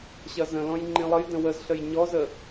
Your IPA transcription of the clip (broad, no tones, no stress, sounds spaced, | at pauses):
ɕ ɐ z ə̃ l ɔ̃ j ŋ͡ǃ ĩ lˠ ə j d ə̃ w ə z ɬ ə j ɲ ɔ z ə